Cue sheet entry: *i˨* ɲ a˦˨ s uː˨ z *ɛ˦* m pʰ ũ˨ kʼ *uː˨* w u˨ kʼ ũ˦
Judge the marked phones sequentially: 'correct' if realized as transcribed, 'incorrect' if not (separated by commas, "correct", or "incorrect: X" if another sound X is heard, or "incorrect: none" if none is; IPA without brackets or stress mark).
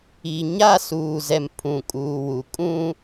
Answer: correct, incorrect: ɛ˨, correct